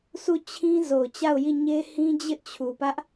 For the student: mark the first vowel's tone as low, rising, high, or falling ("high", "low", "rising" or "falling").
falling